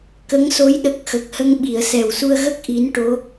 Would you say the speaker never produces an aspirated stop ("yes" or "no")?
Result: yes